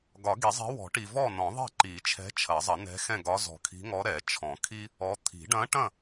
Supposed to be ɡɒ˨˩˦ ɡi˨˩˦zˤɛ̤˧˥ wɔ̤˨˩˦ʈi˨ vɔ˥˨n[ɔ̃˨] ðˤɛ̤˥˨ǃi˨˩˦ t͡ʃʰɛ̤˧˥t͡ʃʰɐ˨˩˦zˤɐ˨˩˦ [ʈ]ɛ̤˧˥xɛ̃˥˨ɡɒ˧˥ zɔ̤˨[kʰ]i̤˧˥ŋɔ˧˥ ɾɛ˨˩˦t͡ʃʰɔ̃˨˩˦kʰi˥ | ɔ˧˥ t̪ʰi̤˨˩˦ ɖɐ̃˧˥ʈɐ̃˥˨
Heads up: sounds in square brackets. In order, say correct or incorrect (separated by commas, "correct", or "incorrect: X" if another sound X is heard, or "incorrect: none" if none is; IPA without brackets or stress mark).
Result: incorrect: ɔ̃˨˩˦, incorrect: n, correct